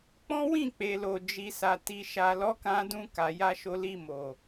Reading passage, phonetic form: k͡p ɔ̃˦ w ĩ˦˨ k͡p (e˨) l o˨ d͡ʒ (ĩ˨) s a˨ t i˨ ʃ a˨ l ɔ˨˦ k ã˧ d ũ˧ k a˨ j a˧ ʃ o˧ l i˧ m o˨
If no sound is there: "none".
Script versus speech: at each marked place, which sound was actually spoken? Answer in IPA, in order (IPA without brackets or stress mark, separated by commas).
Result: e˨, i˨